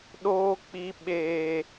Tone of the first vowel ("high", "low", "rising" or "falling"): low